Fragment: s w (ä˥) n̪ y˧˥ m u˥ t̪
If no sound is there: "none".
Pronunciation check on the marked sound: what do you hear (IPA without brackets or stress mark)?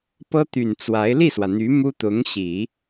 ä˩